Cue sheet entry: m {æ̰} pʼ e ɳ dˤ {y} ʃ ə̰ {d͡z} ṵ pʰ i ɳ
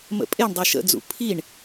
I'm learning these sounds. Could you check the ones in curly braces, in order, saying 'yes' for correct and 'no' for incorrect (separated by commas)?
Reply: no, no, yes